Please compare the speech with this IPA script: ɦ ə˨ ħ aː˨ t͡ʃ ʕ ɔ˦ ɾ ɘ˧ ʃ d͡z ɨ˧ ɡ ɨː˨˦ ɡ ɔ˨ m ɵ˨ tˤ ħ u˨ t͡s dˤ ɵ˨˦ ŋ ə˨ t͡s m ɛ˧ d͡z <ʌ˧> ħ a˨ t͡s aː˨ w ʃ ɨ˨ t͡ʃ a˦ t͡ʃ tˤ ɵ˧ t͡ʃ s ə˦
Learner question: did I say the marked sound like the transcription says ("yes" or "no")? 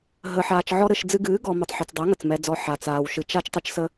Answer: no